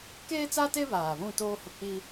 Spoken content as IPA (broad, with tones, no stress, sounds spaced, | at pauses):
k eː˦ t͡s a˦ t e˦ β aː˨ β ũ˦˨ t oː˦ h ʊ˨ k͡p i˦